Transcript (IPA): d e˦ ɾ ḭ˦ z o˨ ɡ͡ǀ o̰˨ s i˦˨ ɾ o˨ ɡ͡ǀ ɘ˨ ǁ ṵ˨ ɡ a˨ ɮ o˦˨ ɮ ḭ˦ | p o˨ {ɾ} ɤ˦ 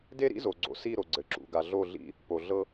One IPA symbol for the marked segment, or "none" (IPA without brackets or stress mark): ɮ